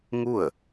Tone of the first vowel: falling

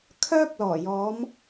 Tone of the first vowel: high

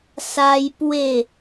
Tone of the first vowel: high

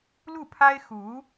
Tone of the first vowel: falling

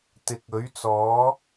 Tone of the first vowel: rising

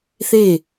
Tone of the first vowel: falling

